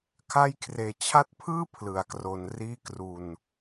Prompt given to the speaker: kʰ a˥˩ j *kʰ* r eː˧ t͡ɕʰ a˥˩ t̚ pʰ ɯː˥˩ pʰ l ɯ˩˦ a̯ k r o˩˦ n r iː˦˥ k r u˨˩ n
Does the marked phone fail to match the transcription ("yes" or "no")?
no